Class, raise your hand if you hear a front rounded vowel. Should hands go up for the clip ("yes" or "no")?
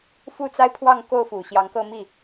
no